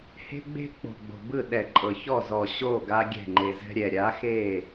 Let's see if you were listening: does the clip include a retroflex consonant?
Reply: no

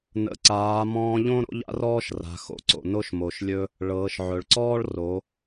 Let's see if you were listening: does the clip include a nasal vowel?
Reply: yes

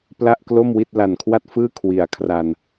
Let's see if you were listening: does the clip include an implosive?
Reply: no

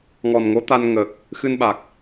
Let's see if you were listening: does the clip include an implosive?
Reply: yes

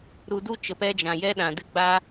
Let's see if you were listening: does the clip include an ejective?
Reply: no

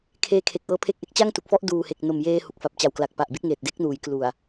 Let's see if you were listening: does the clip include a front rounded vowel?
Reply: no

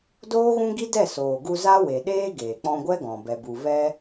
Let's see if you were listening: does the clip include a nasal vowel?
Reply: yes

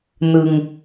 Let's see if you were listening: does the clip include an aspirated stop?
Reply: no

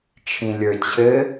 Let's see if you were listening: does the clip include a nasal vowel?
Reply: yes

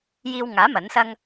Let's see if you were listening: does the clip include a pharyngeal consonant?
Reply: no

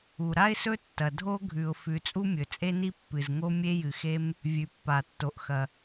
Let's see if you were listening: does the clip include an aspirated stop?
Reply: no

